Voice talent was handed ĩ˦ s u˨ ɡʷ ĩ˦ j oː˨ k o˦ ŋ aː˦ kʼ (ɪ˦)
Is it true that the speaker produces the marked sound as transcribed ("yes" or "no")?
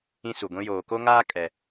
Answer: no